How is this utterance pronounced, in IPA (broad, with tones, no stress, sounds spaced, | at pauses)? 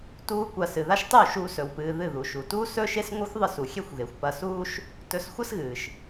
t uː˦ kʷ a˧ s ɨ˨ ð a˦ ʃ tˤ u˦˨ ʃ uː˧ s ɵ˨ w p ɨː˨ ð ɨ˦˨ ð u˨ ʃ u˨ t uː˦ s ɵ˦ ʃ e˦ s ŋʷ ɨ˦ xʷ ðˤ ɨ˦˨ s u˨ xʲ e˦ xʷ ɣ e˨ xʷ p ɐ˧ s uː˦ ʃ | t ɵ˧ s xʷ ɐ˦ s ɣ ɨː˨ ʃ